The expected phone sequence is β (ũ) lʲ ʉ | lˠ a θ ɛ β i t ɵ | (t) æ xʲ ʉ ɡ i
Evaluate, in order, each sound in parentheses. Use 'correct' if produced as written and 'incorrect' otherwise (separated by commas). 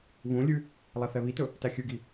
correct, correct